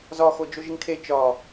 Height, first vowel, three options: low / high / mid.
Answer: low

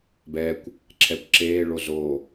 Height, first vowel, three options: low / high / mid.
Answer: mid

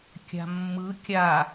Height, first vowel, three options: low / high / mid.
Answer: low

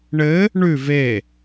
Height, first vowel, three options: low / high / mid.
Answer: mid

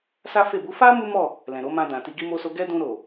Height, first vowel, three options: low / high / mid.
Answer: low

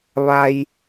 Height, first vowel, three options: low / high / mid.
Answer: low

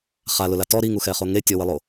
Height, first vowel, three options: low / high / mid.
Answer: low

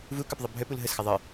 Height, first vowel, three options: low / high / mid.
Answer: high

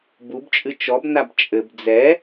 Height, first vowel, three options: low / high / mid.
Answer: high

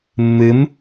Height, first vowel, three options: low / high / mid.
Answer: high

